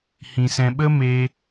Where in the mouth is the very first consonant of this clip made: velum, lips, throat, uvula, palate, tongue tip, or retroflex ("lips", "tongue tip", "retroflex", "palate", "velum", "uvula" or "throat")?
throat